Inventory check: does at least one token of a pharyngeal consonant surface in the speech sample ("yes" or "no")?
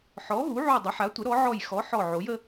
yes